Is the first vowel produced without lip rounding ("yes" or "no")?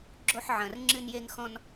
no